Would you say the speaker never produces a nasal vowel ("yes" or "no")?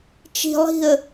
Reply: yes